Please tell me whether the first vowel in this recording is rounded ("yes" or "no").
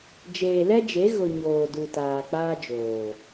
no